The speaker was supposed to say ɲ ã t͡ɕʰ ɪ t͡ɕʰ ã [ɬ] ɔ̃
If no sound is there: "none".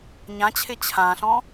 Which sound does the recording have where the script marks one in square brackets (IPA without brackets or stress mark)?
ɬ